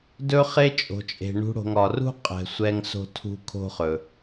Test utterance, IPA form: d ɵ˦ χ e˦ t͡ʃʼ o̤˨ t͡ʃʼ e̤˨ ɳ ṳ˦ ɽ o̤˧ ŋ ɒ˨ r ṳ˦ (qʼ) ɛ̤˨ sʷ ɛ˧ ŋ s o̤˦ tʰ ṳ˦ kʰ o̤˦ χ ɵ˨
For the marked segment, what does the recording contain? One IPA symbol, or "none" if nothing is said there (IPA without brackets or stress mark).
qʼ